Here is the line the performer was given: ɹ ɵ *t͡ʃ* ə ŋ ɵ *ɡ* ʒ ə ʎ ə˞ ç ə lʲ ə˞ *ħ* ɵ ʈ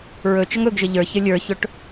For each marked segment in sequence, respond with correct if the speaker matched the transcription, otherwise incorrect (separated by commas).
correct, correct, incorrect